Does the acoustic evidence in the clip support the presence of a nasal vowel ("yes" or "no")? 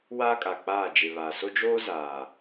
no